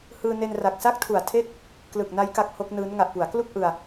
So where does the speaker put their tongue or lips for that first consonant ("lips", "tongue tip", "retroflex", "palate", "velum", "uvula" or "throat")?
throat